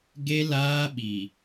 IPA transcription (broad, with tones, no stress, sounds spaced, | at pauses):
ɡ e˦ l aː˦ ɓ i˨